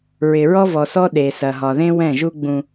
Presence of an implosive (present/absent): present